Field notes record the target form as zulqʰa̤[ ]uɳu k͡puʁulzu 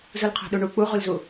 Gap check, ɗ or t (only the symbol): ɗ